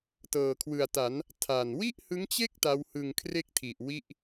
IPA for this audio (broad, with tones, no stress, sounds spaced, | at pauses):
t ɤː˨˩ kʰ w ɯ˨˩ a̯ t a˩˦ n | tʰ a˨˩ n w i˥˩ ʔ h ɯ˦˥ ŋ t͡ɕ e˥˩ k̚ t a˦˥ w h ɯ˧ ŋ kʰ r e˥˩ k̚ tʰ i˨˩ ʔ w i˥˩ ʔ